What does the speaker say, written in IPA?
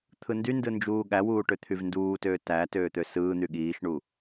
t̪ʰ ɯ n d y n d ɯ n d͡ʒ uː ɠ æ w uː ʈ ø t̪ʰ y v n d uː t øː t æ t øː t̪ ø s ɯː n̪ y ɠ iː ʃ ɳ u

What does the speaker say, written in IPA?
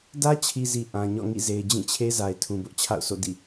d ä˦ t͡ɕʰ i˨ z i˨ ʔ ã˨ ɲ ɔ̰˦˨ ŋ ḭ˦˨ z e˨ ɪ̯ d͡ʑ ĩ˦˨ t͡ɕʰ e˦ z a˨ ɪ̯ tʰ ũ˨ b ʊ˦ ʔ t͡ɕʰ a̰˦˨ ʊ̯ sʰ o̰˦˨ d ḭ˦˨

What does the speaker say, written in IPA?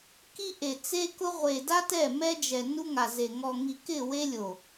k i˦ ʔ e˨ t͡s e˦ k ʊ˦ ʁʷ e˨ d a˦ t ɛ˦˨ m ɛ˦ d͡ʒ ɛ˨ n u˦ ŋ a˨ z e˨ ŋ ɔ˨ ŋ i˨ k ɪ˦˨ w e˦ lʲ o˨

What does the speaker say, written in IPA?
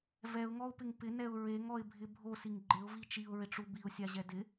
v ɛ ʊ̯ ŋ ɔ ʊ̯ p ɪ ŋ p ɪ n ɛ ʊ̯ ɹ e ŋ ɔ ɪ̯ bʱ ɪ bʱ o s i ŋ ɡ͡ǃ ɪ ʊ̯ v i t͡ʃ i ʊ̯ ɹ ɪ ʈ͡ʂ u b i ʊ̯ sʲ a ʑ ɛ d ɪ

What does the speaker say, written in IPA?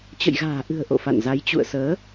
t͡ɕ ə̰˧˨ j ɣ a̤ː˨˩ ʔ ɨ̤˨˩ ə̯ ʔ o̰˧˨ f a̰˧˨ n z a˨˦ j t͡ɕ ṵ˧˨ ə̯ s əː˨˦

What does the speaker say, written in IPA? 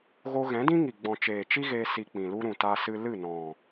ɣ o˧ ɣ ɛ̃˨˦ d ĩ˦ ŋ i˨ ɡ͡b ɔ̃˨ t͡ʃ eː˨ t͡ʃ i˦ ɣ eː˧ s i˧ k͡p ĩ˨ l u˦ ɾ ũ˨ t a˧ s ɨ˧ l ɨ˦˨ n ɔ̃˨

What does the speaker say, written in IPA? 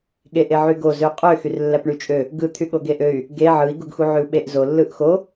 ɠ e ʔ e ʕ y ɡ o z ø qʼ ø x y r lː æ p ɳ y t͡ʃʼ ø | ɡ ɯ t̪ʰ y ɠ o ɡ e ʔ ø y̯ | ɡ e ʕ ɯ i̯ ɡ u ɡ x u ʕ y u̯ ɓ e ʔ z o lː ɯ ʔ x o

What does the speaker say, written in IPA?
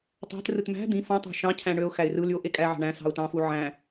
tˤ æ̤ t r ɯ t m æ̤ d̪ ĩ f õ tˤ æ̤ ʃ ɑ̃ cʰ æ̃ ɳ ø ʊ̯ x æ ɪ̯ r ɯ l y ʊ̯ ʔ e kʼ æ ʕ ɑ̤ ɳ æ̃ s ɑ̤ ʊ̯ t ɑ̃ f u ʕ æ̃

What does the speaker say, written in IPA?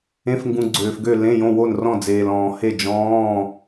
ẽ˧˥˧ f ŋ ɡ ũ˧ ɡ͡ǀ øː˧ f ɡ ø˥˨ l ẽ˧˥˧ j õ˧˥˧ w o˥˨ n r ɔ̃˥˨ d͡z eː˧ l ɔ̃ː˧ h e˥˨ d͡ʒ ɔ̃ː˧˥˧

